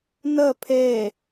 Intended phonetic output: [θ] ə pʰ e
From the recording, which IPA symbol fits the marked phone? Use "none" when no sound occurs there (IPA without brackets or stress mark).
n